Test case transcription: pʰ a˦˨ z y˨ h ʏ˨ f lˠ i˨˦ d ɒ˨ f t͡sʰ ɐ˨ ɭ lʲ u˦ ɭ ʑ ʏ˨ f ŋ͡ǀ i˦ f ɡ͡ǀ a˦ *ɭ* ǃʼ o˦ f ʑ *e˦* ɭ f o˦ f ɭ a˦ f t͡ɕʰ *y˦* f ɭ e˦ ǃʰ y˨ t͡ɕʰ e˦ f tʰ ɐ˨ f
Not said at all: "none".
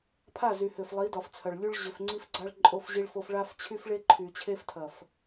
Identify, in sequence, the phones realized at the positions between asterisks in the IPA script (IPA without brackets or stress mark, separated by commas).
ɭ, i˦, y˦